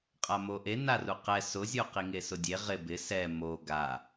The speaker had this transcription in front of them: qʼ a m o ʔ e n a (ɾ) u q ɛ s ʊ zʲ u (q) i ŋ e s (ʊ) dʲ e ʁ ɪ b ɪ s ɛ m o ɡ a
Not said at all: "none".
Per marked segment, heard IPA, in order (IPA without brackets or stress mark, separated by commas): r, q, ʊ